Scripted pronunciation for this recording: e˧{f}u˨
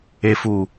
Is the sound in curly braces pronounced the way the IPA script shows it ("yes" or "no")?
yes